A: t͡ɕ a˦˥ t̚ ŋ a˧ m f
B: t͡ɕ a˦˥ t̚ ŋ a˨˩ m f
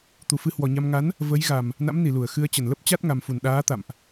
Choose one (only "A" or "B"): B